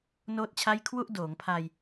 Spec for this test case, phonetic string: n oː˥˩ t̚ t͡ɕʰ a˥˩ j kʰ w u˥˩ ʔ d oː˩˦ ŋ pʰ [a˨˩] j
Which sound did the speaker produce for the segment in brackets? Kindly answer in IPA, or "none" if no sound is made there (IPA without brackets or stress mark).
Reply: a˧